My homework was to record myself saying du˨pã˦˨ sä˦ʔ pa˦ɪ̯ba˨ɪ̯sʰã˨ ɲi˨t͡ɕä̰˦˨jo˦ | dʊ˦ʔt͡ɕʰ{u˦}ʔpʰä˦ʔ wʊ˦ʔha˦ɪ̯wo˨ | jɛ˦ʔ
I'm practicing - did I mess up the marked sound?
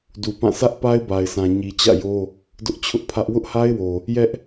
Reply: yes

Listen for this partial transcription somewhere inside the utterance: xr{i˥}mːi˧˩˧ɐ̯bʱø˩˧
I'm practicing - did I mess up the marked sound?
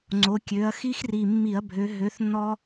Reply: yes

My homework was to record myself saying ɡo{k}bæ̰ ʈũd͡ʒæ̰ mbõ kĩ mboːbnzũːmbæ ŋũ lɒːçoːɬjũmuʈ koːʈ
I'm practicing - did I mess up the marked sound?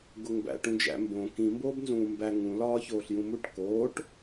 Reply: yes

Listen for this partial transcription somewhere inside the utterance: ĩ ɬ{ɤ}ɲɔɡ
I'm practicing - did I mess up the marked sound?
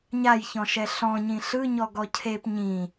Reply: yes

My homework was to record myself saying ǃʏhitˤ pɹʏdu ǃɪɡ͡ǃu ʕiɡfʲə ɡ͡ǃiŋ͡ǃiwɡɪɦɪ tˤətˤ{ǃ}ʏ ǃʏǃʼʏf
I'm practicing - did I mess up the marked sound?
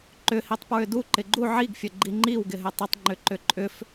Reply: yes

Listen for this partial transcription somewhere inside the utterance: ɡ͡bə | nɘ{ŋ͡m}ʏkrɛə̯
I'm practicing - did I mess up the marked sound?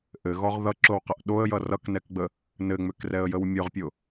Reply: no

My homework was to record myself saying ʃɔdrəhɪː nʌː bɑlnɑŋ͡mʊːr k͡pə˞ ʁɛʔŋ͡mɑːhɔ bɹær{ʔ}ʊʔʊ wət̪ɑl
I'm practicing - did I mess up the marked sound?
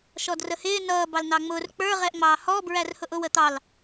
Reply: yes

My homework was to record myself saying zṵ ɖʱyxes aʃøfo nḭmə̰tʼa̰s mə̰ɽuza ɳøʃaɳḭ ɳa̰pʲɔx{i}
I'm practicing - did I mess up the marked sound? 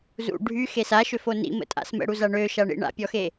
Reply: yes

